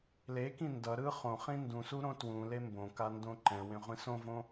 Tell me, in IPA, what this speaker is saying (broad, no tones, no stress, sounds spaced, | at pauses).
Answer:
l e k ĩ n d ʌ ɾ ɯ χ õ χ ĩ n d ũ s u ɾ õ t w ũ l e m b õ k a n d õ ǃ ɛ̃ w ẽ ʁʷ ĩ s õ v õ